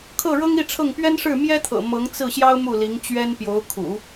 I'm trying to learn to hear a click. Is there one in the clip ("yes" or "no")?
no